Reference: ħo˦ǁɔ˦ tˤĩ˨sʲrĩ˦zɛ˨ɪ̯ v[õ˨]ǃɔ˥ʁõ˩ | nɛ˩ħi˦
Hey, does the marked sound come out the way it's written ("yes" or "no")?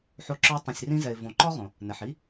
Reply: yes